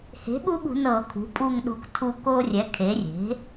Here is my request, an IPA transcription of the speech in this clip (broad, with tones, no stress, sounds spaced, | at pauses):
h e̤˩˥ ɠ u˦ ɠ ṳ˧˩˧ n ɤ˧˩˧ kʰ ṳ˩˥ pʼ u˦˨ ŋ ɗ o̤˦˨ k tʰ u˦ k o˦ rʲ ɛ˩˥ kʰ e˩˥ rʲ e̤˩˥